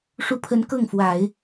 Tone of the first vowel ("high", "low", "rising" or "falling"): rising